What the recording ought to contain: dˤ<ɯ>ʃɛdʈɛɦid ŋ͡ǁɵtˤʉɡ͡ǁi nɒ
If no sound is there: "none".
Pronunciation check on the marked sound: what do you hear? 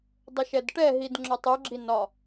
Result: ə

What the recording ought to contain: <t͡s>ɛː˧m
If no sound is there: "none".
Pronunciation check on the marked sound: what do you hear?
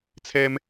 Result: t͡sʰ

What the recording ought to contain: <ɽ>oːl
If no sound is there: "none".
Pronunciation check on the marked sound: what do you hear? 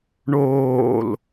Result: ɳ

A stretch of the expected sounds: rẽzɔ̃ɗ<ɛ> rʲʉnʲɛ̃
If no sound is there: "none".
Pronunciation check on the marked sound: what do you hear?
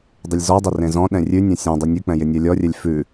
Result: ɛ̃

